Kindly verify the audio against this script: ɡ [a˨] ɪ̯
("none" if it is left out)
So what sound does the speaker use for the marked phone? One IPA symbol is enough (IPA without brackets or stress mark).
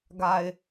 a˨